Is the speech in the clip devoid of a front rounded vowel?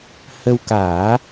yes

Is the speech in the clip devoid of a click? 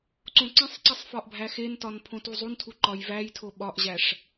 no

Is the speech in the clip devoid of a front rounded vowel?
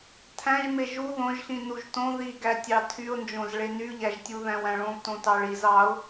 no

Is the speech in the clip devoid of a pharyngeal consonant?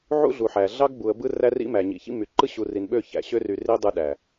no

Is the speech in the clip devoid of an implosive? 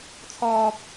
yes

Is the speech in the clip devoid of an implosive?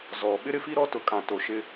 no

